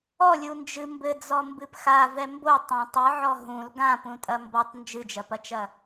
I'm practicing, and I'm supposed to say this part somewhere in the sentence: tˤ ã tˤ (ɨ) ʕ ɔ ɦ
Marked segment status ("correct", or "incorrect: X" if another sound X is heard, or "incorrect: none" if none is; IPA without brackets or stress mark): correct